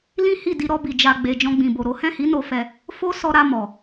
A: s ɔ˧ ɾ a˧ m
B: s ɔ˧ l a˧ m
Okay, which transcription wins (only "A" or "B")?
A